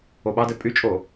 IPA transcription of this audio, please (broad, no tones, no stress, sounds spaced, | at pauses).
o ɓ ɑ d ɛ pʼ y t͡ʃʼ o